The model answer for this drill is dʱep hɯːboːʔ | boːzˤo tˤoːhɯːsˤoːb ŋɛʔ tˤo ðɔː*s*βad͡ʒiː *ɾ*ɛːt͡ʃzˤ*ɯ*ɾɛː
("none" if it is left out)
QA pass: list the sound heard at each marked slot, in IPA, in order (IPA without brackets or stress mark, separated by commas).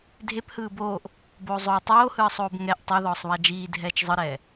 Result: sˤ, dʱ, ɯ